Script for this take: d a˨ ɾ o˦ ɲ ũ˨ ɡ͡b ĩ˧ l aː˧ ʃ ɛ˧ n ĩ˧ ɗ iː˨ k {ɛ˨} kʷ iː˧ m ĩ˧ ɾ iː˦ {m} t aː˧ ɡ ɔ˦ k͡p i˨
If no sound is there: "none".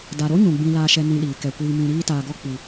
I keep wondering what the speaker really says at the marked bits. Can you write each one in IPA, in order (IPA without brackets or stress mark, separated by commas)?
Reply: ɛ˨, none